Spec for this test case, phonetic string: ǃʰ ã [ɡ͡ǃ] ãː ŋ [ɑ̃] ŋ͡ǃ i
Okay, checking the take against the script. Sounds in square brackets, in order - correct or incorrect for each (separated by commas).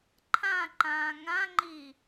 incorrect, incorrect